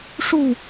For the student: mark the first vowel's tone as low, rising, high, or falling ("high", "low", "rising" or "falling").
falling